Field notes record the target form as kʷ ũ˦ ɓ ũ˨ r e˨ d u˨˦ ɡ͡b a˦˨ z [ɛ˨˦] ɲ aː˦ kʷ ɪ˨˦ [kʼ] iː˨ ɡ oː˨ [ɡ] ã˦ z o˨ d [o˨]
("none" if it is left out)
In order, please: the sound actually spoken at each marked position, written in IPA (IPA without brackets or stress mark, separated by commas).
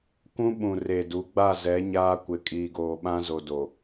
ɛ˨˦, kʼ, ɓ, o˨